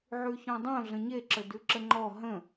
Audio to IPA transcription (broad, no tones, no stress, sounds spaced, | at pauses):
ʕ ʉ ç ɔ̃ dˤ õ ɮ ə̃ ɲ e ǁ ə d ʉ ǁ ə ŋ͡ǃ ɔ ɦ ə̃